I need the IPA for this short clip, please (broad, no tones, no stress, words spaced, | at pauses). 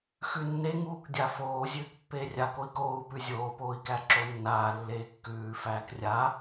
xʉnːeŋuːk dʲafoː zʲʉːkpːeːrʲa koi̯koːu̯pʉ zʲoːpoːi̯kæ ǁonːaːlːeː kːʉː fæːkrʲa